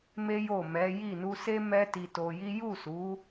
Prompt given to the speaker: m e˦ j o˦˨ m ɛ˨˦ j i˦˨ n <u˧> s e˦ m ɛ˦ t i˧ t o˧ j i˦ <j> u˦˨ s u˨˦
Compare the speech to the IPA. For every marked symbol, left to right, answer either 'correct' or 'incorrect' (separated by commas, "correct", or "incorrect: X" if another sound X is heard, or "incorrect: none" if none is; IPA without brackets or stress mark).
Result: correct, correct